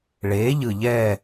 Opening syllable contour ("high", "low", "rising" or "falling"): rising